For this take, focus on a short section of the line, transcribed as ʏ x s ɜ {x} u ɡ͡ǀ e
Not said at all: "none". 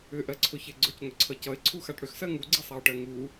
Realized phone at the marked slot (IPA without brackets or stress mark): ŋ